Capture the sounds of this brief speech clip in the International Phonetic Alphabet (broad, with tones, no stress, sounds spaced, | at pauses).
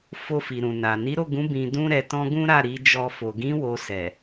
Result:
f o˧ f i˨ ɾ ũ˨ n a˨ n i˨˦ ɾ o˦˨ ɡ ũ˨˦ b ĩ˧ d ũ˦ ɾ ɛ˧ t ɔ̃˦ ɡ ũ˦ ɾ a˦˨ ɾ i˨˦ d͡ʒ ɔ˧ f o˨ ɡ ĩ˨˦ w o˧ s ɛ˨